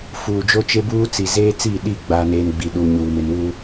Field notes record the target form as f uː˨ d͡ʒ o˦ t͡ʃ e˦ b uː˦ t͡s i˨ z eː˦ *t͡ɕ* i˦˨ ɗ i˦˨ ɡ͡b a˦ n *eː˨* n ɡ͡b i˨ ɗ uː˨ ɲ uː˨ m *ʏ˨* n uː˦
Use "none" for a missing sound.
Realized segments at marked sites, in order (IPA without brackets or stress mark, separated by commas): t͡s, eː˦, ɪ˨